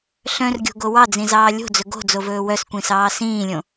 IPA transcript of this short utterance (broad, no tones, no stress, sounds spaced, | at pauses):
ɬ œ̃ r ɡʲ o̤ ɡ o w ɑ d͡z ĩ z ɑː lʲ o̤ d͡z ɵ ɡ o̤ d͡z o v ɵː w œ s kʷ ĩ s ɑː s ĩː lʲ õ